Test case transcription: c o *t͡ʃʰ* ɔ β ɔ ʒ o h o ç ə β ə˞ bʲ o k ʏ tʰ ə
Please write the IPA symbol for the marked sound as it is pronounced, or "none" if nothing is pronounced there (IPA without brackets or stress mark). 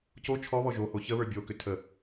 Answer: t͡ʃʰ